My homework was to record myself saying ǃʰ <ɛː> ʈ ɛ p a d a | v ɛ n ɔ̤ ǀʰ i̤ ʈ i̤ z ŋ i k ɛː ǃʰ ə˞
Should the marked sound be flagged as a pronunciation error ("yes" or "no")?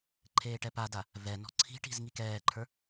yes